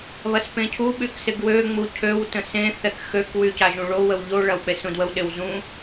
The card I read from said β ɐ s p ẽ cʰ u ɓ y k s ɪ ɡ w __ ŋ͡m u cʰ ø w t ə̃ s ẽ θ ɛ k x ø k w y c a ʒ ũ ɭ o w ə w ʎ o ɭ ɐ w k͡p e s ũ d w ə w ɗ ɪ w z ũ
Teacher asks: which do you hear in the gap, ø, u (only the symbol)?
ø